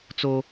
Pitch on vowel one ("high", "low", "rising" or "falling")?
high